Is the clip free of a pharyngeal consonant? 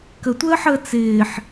no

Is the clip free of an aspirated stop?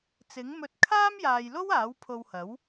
no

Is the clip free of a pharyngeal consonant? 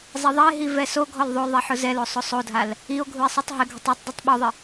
no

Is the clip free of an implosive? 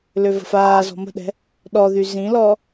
no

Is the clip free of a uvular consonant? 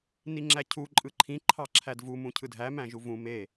yes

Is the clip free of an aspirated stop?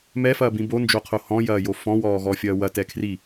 no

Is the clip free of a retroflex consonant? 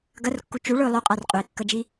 no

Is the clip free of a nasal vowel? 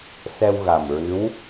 yes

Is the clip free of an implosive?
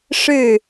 yes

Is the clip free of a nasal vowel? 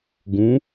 no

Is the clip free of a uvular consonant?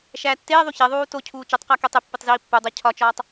no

